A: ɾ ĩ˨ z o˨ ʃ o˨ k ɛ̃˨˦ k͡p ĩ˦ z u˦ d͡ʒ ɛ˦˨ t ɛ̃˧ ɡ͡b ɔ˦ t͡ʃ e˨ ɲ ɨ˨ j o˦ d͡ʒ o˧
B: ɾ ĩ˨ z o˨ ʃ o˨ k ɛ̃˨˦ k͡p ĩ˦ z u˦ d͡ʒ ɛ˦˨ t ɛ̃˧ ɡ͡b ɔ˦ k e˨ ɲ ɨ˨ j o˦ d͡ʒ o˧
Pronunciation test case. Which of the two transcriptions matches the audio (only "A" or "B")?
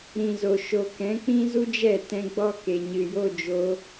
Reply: B